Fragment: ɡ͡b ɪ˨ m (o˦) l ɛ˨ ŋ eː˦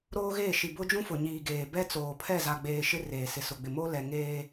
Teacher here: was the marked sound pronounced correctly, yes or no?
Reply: yes